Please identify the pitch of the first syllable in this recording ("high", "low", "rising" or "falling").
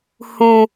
high